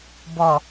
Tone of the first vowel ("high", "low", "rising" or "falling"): low